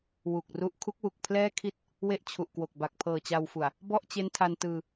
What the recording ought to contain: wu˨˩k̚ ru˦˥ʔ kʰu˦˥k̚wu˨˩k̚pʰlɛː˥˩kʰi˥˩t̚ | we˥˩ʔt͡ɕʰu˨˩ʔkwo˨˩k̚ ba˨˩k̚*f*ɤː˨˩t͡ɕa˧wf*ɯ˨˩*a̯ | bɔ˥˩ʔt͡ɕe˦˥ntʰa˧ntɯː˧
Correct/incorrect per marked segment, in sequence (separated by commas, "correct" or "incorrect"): incorrect, incorrect